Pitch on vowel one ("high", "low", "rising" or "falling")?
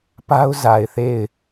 high